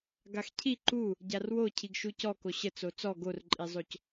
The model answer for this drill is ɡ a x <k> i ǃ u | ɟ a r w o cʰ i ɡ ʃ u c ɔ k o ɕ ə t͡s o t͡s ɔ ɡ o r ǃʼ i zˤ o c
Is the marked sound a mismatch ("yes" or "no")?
yes